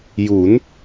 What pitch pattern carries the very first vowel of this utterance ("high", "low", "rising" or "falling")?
rising